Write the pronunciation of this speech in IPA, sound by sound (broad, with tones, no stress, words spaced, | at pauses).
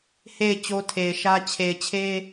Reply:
he˦˨ɪ̯ t͡ɕo˦tʰe˨ɪ̯ʃä˦ t͡ɕʰe˨ɪ̯t͡ɕʰe˦